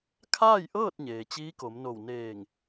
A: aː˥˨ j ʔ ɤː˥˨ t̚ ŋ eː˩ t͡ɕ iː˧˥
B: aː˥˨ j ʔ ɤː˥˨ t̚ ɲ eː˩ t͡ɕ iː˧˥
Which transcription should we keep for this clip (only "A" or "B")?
B